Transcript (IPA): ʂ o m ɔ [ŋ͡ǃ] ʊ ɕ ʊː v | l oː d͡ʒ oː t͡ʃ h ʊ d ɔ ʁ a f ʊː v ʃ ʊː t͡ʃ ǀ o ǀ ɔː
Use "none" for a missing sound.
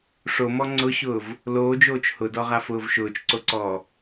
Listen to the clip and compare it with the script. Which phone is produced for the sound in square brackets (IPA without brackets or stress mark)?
ŋ͡ǀ